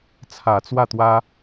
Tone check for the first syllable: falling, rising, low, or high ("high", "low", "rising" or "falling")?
low